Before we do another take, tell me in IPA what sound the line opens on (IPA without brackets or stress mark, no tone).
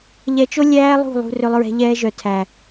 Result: ʎ